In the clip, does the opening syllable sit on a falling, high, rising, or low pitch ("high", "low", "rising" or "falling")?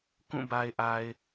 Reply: falling